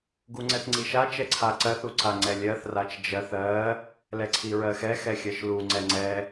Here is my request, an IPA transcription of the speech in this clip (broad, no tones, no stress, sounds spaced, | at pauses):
ɡ u ŋ͡ǀ ɛ θ ŋ͡ǀ i ʃ a t͡ʃ ɛ ǀʰ a ǀ ɜ θ u ǀ a ŋ͡ǀ ɛ lʲ ɜ θ r a t͡ʃ d͡ʒ ɜ θ ɜ | l ɛ ǀʰ i ɹ ɜ x ɛ x ɛ xʲ ɜ ʃ l u ŋ͡ǀ ɛ ŋ͡ǀ ɛ